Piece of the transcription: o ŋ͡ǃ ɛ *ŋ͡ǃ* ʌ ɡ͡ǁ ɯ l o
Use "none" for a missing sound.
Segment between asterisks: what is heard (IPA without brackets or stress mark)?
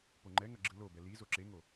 ŋ